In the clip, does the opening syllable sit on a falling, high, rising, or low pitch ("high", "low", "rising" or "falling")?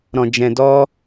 low